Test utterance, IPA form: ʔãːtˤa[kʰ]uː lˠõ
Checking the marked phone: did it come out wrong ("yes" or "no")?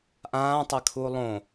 no